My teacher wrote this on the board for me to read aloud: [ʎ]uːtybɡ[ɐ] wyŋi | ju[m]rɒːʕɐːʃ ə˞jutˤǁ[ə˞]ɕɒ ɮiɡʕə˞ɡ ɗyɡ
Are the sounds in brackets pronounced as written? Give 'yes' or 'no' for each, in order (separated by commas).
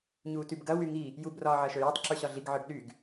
no, yes, no, yes